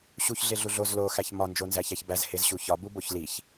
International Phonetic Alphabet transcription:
ɕ u ç ɮ e ɮ u ɮ o z l o x æ ç m ɒ n d͡ʒ o n z æ ç æ ç b æ z h e z ɕ u ç ɒ b u b o ç l i ç

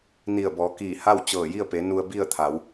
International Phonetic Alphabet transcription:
n i˧˩ ə̯ b ɔː˩˧ k iː˧˩ h a˥˨ w t͡ɕ ɤː˧˩ j i˥˨ ə̯ p e˩˧ n u˧ ə̯ b i˥˨ ə̯ t̪ʰ a˩˧ w

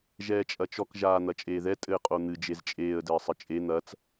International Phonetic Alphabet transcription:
ʒ ɛː t͡ʃʼ ɐ t͡ʃ ɔ k ʒ aː n̪ ɐ t͡ʃʼ eː ð ɛ tʼ ɘː qʼ o n̪ ɨ d͡ʒ e z t͡ʃʼ eː ə̯ d ɘː sˤ ɘ t͡ʃʼ e n̪ ɐ t͡s

